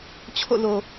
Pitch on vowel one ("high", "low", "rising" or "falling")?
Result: falling